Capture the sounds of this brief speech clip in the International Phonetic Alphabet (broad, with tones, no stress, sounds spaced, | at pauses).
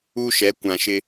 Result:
u˦ ʃ ɛ˨˦ kʷ ã˨ ʃ ɪ˦